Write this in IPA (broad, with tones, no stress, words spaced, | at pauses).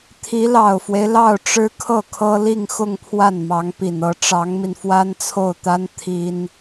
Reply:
t̪ʰi˧˥lɑ˨˩ʊ̯fwe˦ɪ̯lɑ˥˩ʊ̯ ʈ͡ʂɻ̩˥kʰɤ˥˩kʰɤ˥ li˥˧ŋxʊ˥˧ŋpʰwa˥˩n mɑ˧˥ŋpi˨˩nɤ˧˥ ʈ͡ʂɑ˧˥ŋmi˧n fwa˥nt͡sʰo˥˩ʊ̯t̪a˥n t̪ʰi˥n